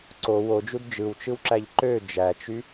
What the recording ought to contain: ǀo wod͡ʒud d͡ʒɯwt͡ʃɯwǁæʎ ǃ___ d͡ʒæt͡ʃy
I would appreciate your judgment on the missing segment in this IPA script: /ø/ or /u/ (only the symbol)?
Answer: ø